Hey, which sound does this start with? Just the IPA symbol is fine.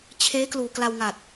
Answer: t͡ɕʰ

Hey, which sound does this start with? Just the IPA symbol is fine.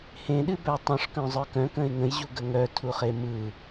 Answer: h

